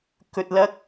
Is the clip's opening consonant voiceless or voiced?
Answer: voiceless